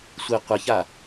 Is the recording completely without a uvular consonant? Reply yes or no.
no